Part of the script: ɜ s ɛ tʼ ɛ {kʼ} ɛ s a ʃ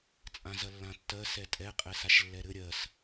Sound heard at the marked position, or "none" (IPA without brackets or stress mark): qʼ